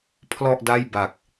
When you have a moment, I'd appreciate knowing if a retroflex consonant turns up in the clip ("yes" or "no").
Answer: no